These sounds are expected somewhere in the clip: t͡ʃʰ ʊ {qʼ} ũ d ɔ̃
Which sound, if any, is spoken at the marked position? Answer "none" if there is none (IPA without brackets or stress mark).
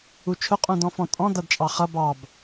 qʼ